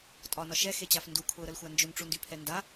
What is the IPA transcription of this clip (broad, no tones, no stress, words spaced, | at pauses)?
tʼɒnɒ ʃɛxet͡ɕaf ndukʰʊːɾəlxʷa nd͡ʒʊnʈ͡ʂundypʰɛ nda